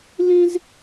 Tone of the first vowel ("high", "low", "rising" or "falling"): high